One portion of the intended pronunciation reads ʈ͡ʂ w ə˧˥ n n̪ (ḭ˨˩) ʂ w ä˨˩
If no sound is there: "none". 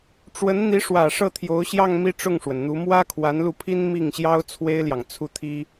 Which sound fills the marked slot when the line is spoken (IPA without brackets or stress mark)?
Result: i˧˥